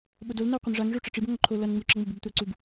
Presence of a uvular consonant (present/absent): present